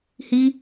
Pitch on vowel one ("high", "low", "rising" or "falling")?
high